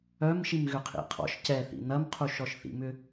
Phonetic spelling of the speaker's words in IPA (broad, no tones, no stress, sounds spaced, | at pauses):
œ m ʃ i m ɣ ʏ qʰ ḭ qʰ ɔ̰ ʃ c ɛ θ ḭ n ɐ m qʰ u ʃ ɔ ʃ θ ḭ m ʏ